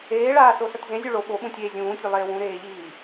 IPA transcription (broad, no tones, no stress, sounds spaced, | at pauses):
eː ɭ aː s o s ɐ t z ẽ zʲ ʉ ɭ o ɓ o ɓ ũ tʲ eː zʲ ũː tʲ ʉ lˠ eː w ũ ɾ eː ʎ iː